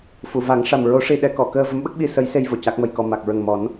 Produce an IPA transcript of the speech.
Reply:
f u˨˩˨ v a˨˩˦ ŋ ʂ a˨˩ m ɹ o˧˥ ʂ i˧ ɗ ɛ˧˥ k ɔ˨˩˨ k əː˧ v ə˧˥ m ɓ ə˦˥ k̚ ɓ i˧ s ə˧˥ j s e˧ j v o˨˩ c a˦˥ k̚ m ə˧ j k ɔ˧ m a˨˩ k̚ ɹ ə˨˩ ŋ m ɔ˨˩˦ n

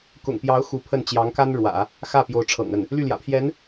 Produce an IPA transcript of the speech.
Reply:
k ʊ̰˨˩ ŋ p j ɑ˧˥ ʊ̯ x u˧˥ pʰ ə˥˩ n t͡ɕ j ɑ˧˥ ŋ k a˥ n ɻ w ä̰˨˩˦ | x ä˥˩ p j o˧˥ ʊ̯ ʈ͡ʂʰ ɤ̰˨˩ ŋ ə˥˩ n | l y˥˩ l j ä̰˨˩ pʰ j ɛ˧˥ n

